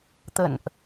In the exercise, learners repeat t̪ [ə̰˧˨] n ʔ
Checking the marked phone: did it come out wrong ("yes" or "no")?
no